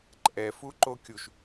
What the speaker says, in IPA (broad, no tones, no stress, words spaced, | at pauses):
ǃʼɛfu ǃokʲuʃ